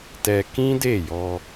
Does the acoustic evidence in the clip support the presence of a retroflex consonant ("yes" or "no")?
no